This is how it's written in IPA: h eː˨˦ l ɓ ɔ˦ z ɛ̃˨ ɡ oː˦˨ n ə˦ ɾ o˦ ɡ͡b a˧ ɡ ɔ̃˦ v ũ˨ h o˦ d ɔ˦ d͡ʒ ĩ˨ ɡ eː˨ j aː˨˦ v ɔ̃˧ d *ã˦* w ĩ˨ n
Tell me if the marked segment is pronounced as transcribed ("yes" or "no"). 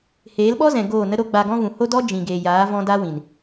no